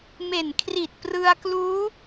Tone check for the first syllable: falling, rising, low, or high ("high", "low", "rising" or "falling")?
low